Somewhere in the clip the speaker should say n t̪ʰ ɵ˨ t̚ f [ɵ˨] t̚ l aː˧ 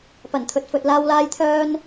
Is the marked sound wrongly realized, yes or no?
no